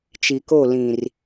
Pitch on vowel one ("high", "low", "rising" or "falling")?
low